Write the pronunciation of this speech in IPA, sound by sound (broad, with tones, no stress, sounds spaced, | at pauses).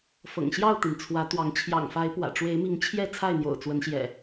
f ɤ̰˨˩ ŋ ɕ j ɑ˥˨ ʊ̯ t̪ i˩ n t͡sʰ w ä˨˦ t̪ w ɑ˨˦ ŋ t͡ɕʰ j ɑ̰˨˩ ŋ f a˨˦ ɪ̯ p w ä̰˨˩ ʈ͡ʂ w e˨˦ ɪ̯ m i˨˦ ŋ t͡ɕʰ j ɛ˥˨ t͡sʰ a˥˨ ɪ̯ n̪ j o̰˨˩ ʊ̯ t͡s w ə˨˦ n ɕ j ɛ̰˨˩